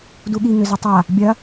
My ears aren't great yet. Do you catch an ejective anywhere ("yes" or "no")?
no